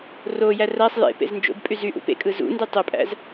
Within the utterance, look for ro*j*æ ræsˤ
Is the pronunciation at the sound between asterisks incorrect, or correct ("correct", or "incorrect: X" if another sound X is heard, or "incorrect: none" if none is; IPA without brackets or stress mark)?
correct